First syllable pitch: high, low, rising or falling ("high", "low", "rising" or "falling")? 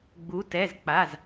rising